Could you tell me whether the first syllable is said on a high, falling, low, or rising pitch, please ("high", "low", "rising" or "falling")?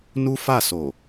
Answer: high